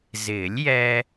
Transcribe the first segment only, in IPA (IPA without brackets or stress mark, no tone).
z